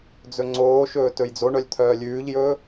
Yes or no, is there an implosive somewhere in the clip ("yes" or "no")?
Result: no